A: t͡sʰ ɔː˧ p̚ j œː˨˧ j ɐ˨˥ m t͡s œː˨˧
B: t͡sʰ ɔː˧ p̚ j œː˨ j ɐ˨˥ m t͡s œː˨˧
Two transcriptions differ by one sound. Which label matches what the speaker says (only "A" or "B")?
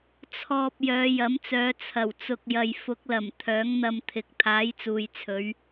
A